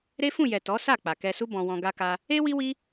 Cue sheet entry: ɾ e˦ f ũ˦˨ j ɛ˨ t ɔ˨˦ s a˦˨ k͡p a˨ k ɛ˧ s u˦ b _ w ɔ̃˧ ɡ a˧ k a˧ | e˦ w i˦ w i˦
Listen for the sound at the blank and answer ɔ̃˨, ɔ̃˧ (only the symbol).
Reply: ɔ̃˧